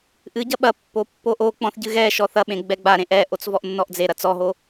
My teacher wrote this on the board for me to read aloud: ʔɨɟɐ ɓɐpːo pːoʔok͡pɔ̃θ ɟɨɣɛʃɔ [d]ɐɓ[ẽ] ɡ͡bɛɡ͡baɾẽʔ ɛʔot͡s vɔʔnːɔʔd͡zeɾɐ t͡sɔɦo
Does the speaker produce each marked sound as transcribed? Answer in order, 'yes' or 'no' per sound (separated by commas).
no, yes